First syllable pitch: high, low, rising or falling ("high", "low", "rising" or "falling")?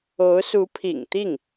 rising